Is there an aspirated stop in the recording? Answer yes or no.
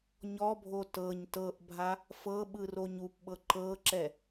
no